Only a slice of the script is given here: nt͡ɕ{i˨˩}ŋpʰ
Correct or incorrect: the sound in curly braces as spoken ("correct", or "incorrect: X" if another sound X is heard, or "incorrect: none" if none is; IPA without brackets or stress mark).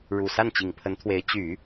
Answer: correct